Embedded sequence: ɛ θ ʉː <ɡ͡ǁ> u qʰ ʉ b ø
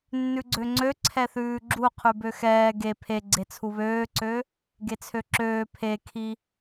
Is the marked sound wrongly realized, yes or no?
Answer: no